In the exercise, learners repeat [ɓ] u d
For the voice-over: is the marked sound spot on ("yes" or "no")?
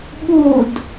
yes